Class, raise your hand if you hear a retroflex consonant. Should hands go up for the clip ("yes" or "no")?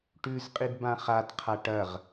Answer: yes